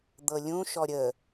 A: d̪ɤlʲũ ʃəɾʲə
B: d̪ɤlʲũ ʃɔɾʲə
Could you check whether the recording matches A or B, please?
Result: B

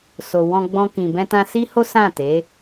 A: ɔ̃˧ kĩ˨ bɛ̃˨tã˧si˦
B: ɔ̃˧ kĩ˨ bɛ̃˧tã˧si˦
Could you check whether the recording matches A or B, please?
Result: B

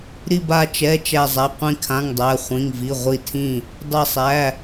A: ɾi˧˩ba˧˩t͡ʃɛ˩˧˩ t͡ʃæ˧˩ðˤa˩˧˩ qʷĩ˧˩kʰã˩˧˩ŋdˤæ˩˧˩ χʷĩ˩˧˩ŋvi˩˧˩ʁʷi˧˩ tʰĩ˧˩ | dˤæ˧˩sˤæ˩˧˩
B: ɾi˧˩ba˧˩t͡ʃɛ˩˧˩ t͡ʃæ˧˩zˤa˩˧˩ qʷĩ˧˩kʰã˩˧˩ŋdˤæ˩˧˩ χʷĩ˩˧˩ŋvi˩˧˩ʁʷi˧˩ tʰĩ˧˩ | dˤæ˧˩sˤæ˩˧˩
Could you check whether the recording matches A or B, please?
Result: B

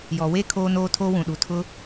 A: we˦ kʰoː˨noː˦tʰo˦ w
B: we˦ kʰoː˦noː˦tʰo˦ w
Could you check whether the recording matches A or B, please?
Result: B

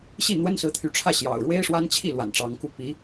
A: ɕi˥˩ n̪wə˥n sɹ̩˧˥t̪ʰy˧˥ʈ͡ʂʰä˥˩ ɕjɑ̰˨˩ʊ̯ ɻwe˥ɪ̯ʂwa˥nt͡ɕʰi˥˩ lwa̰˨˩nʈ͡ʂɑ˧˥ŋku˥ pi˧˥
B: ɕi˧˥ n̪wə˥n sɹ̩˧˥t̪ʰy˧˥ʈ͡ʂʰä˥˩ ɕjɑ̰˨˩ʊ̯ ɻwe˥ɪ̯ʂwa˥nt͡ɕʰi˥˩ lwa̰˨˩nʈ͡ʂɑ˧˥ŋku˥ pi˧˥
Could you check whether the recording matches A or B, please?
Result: A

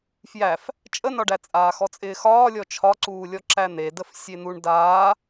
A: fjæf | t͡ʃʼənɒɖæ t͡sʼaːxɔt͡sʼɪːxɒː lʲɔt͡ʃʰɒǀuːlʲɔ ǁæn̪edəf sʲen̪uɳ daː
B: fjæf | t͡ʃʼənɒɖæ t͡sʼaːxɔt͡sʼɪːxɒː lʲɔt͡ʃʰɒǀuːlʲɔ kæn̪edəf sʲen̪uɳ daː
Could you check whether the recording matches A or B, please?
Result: A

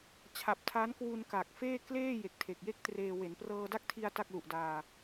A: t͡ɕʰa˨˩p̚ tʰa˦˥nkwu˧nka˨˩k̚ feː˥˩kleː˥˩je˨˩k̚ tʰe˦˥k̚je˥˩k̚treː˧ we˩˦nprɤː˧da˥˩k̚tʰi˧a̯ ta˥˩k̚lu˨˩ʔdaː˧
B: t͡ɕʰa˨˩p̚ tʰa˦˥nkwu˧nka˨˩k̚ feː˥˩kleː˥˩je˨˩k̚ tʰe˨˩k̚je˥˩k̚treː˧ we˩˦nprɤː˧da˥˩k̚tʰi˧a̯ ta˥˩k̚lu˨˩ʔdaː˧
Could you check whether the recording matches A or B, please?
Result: B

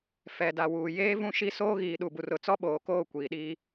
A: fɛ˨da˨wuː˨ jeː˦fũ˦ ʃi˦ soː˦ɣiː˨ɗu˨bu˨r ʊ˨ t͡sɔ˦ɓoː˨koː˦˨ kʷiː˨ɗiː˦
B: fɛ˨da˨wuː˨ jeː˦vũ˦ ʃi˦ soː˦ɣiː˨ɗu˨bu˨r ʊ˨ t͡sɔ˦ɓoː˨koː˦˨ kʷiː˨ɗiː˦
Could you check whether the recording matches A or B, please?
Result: B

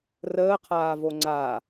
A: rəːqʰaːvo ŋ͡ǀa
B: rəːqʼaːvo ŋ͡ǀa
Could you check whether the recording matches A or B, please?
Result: A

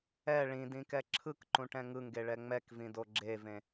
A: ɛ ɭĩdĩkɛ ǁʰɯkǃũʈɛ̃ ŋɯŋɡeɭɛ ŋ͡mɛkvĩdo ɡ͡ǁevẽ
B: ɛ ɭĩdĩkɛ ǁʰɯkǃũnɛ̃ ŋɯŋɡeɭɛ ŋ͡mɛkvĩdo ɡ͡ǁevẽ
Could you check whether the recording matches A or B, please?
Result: A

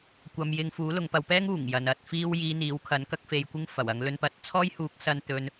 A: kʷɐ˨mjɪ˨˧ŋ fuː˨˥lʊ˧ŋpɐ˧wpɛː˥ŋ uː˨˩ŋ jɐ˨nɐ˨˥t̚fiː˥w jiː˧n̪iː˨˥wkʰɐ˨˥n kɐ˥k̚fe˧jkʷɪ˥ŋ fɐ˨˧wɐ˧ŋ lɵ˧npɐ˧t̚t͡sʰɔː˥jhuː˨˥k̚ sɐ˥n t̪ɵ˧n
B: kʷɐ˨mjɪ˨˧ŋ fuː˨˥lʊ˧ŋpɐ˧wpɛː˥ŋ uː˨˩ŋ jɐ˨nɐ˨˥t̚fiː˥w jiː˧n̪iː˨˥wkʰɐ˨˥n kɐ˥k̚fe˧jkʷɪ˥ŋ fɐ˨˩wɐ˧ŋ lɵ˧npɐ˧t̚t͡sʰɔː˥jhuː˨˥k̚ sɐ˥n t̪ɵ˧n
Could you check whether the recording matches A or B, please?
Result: B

